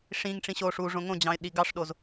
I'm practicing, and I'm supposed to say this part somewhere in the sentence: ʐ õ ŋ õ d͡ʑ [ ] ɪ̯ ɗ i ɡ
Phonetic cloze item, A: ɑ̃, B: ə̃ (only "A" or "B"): A